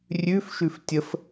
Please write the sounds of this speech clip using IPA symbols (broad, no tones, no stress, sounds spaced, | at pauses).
rʲ ʉ f ʃ ʉ f tʲ ə f